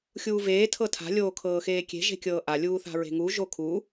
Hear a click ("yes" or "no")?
no